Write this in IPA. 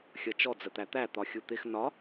xʲʌt͡ʃɔ d͡zət̪æt̪æ t̪ɒxʲut̪ɪx nɒ

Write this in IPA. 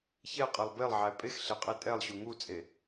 çɛqʼelˠ belˠʕæ pʼexɬeqʼe tʼɛlˠɕu ŋut͡sʼe

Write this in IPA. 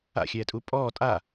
a̰xʲɛːtʼu pʼɔː tʼa

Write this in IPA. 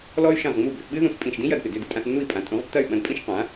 lɔ˥y̯ʃɐ̃˥˩ʁŋ͡mu˥˩ bʏ˥˩θɓɨ˥ðũ˧s pʼĩ˥˩ʃ dĩ˥jɐ˧dpɪ˩ dʏ˥˩dɪ˧tʼã˧θ nːu˥˩i̯pʼã˩˥tʼũ˩˥ʁ tːɐ˥˩y̯ ɓɐ̃˧dpʼĩ˥ʃ qã˩˥

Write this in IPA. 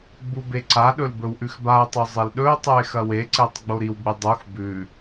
ɡ͡bubeǀaɗɵl bɵwʔʉxbao̯tˤo zˤilɗɵo̯tˤʉe̯ xɐweǀetˤ ɡ͡boɾiwɡ͡bɨ dˤux bʉ

